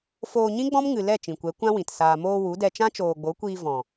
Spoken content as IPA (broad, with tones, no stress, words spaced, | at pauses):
foː˧ɲĩ˦ ɡ͡bɔ̃˦mŋɨ˨lɛ˦˨ t͡ʃĩ˨kʷɛ˨˦ kʷã˦wĩ˨t saː˨moː˧ wu˨˦dɛ˧ t͡ʃã˦t͡ʃoː˨ɡ͡bo˨˦kʷiː˧ vɔ̃˨